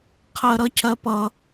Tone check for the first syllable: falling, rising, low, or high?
high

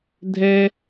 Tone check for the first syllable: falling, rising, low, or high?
high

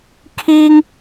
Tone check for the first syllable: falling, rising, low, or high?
high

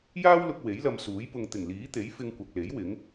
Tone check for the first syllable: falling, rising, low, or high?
high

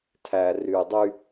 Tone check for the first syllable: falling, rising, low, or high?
low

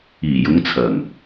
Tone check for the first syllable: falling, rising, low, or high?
low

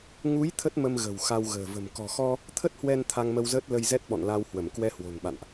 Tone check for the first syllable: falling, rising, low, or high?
rising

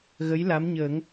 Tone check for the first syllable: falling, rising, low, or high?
rising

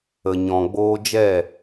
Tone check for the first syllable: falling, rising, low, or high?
low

